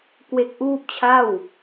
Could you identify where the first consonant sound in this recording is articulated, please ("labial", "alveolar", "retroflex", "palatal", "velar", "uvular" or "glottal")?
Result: velar